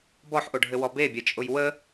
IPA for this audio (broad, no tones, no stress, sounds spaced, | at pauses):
b ɔ ħ ʔ o ɖʱ ɘ w ɔ b e bʲ ɛ t͡ʃʼ ʊ j w ə